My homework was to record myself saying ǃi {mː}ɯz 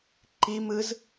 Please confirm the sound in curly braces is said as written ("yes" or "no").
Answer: no